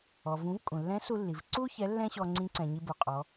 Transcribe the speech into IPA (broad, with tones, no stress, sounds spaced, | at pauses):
ɔ˩ v ũ˩˧ v kʼ ũ˩ lː ɛ̃˧˥ s u˧ lː i˩ v ǀ u˥ ç ɛ˧˥ lː ɛ̃˥ ɕ ɔ˧ ŋ͡ǀ ĩ˧˥ ǀ ɛ̃˩ ɲ i˧ b u˩ qʼ ɔ˩˧